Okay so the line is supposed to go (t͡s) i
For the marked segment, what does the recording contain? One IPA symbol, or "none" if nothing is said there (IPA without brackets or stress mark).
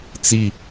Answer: t͡s